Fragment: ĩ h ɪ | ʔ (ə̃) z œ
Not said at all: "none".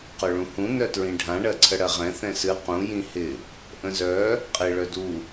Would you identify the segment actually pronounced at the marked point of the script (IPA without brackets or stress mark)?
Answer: ə̃